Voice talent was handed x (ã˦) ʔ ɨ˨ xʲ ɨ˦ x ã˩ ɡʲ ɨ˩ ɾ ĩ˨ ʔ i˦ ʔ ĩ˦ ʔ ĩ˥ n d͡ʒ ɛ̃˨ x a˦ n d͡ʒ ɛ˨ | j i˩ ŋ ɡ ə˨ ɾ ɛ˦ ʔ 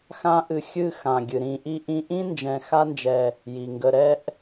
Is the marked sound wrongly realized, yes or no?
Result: no